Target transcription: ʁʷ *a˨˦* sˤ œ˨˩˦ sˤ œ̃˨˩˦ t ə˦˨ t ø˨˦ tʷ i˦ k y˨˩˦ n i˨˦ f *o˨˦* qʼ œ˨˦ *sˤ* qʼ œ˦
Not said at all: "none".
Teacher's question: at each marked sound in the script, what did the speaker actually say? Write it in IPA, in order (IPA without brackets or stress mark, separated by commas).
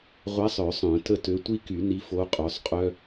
a˨˦, o˨˦, sˤ